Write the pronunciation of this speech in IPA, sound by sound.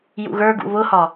j ṵ ɣ ə˞ ɡ ṵ β ʊ h ɒ

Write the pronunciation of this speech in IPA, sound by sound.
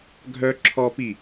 ɡʱ œ ǁʰ ɔ p i

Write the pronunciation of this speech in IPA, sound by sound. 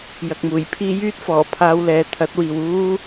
j ɐ˨ k̚ m uː˨˩ j pʰ iː˥ j yː˥ t̚ f ɔː˨˩ pʰ aː˧ w l ɛː˨ t̪ʰ ɐ˨˥ t̚ w iː˨ w uː˥

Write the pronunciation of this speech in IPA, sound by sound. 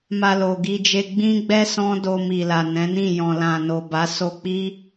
m a˧ l o˨ ɡ i˧ d͡ʒ e˧ ɡ͡b ĩ˦ ɡ͡b ɛ˦ s ɔ̃˦ d o˧ m i˨ l a˨ n ɛ̃˨˦ n ĩ˦˨ j ɔ̃˨ l ã˨ n o˨ b a˨˦ s o˧ k͡p i˦

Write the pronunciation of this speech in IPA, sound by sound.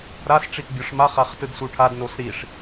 ɾ a s ʈ͡ʂ i t bʲ ɔ ʂ m a χ a χ t ɯ d s u ʈʰ a d n o s ɾ i ʂ

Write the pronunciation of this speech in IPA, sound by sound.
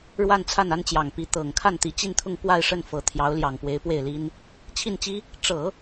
ɻ w a˥˧ n t͡sʰ a˥˩ n a˥ n t͡ɕ j ɑ˨˩ ŋ p i˧˥ t̪ ɤ˨˩ ŋ kʰ a˥˩ n t̪ i˧˥ t͡ɕ i˥˧ n t̪ʰ ʊ˥˧ ŋ p w a˥˧ ɪ̯ ʂ ə˥˩ n f ɤ˧˥ t̪ʰ j ɑ˧˥ ʊ̯ l j ɑ˨˩ ŋ p w e˧˥ ɪ̯ p w e˥˩ ɪ̯ l i˥ n | t͡ɕʰ i˥˩ n t͡ɕ i˥ | ʈ͡ʂ ɤ˨˩˦

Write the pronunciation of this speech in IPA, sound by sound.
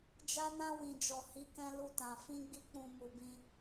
d͡ʒ a˧ n ã˧ w ĩ˨ d͡ʒ ɔ˨ h i˨˦ k ɛ̃˧ l u˧ t ã˨ f ĩ˧ ɡ͡b i˧ k͡p ũ˨ m u˨ b ĩ˧

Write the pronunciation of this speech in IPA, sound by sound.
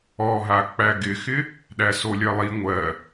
ɔ ɦ a k͡p æ ɡ ɪ x ɪ | ɗ æ s o lʲ ɜ lˠ i ŋʷ ɜ

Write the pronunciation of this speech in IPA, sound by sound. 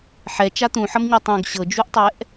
ħ ɛ t͡ʃ a t̪ ũ ħ ʌ m ɲ ɜ tˤ ũ ɡ ɕ ɤ d͡ʒ u ʔ tˤ ɛ ʔ

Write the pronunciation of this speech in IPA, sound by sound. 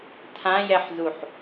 tʰ ã j ɛ ħ z u ħ

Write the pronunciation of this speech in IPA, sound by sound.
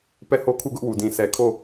p ɛ˦˨ h o˦ kʰ u˦˨ ɡ ʊ˦ ʔ w u˨ d ĩ˨ s ɛ˨ kʰ o˦˨

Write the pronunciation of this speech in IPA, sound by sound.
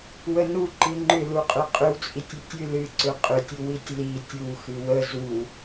w ə n u ǃ ɨ ŋ͡ǃ ʏ l u qʼ ʏ qʼ ʏ w t͡sʼ i tʲ ʏ tʲ ɨ l ɨ ǀ ʏ qʼ ʏ tʲ u w i tʲ l i tʲ u x ɨ w ə z u

